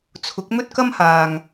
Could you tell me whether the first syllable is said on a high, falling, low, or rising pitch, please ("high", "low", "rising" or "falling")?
rising